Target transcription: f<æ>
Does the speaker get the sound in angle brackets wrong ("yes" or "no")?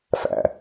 yes